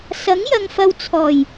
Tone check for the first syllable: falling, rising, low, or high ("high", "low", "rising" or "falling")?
rising